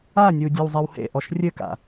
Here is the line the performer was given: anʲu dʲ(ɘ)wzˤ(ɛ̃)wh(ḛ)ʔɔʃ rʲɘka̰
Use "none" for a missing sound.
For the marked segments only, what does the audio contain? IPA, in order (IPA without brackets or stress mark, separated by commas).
ɘ, ɛ, ḛ